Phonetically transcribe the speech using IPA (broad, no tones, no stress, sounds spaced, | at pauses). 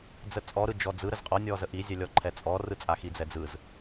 d͡z ə t͡sʼ ɔ ɾ ɯ d͡ʒ ɔ d͡z ɯ ɾ ə z qʼ ɔ nʲ ɔ z ə ʔ i zʲ ɛ lʲ ɔ ǃʰ ɛ t͡sʼ ɔ r ɯ t͡sʼ a x i d͡z ɛ d͡z ɯ z